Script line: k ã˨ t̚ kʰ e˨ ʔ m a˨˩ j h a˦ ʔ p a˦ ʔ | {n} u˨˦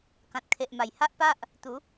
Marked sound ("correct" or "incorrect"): incorrect